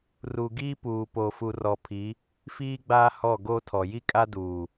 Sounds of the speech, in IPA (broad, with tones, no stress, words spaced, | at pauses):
ru˨ɡiː˦puː˨ po˨fu˨rɔ˨pʰi˨˦ | fiː˦ɡ͡baː˦ hɔ˦˨ɡo˦tʰɔ˨ ji˦kʼa˦duː˨